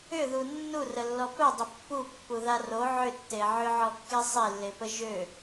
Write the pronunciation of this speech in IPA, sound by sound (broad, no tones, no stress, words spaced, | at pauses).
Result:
ʏðu nːurəlːɔ pœ dˤəpːupːu ðaro ʕʏtːe ʕʏʕɔkːe sˤelːepə ʒø